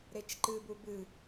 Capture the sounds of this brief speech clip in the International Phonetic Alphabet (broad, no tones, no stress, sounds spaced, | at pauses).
ɾ e t͡ʃ ǃ ɨ b u b ɨ